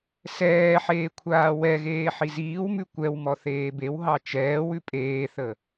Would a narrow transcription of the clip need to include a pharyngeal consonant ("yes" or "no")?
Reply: yes